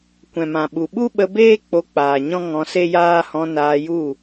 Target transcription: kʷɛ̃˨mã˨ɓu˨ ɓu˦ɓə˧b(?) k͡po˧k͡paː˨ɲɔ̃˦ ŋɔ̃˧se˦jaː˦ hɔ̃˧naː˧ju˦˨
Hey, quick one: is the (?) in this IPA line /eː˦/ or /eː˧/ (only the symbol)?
eː˦